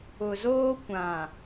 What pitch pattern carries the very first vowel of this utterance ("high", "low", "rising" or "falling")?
low